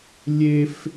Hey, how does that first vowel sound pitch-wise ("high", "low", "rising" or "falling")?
high